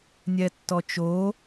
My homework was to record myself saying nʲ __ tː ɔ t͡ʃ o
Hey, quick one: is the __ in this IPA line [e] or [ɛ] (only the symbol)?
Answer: ɛ